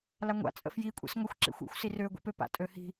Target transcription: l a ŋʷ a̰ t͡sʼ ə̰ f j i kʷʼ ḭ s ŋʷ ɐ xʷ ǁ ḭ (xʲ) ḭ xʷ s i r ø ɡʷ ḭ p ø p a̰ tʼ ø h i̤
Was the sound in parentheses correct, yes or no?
no